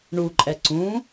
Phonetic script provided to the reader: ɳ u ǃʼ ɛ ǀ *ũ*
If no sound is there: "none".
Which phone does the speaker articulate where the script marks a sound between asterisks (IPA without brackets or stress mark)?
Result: ũ